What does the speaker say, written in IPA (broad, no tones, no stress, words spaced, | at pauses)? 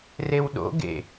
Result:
rewɗo̰ ɡḛ